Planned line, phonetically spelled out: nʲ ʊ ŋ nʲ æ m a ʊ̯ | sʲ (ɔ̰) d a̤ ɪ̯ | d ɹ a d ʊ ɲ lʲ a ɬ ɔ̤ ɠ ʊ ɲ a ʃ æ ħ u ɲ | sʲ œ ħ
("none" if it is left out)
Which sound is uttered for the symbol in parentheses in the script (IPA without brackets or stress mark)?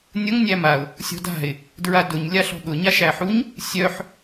ɔ̤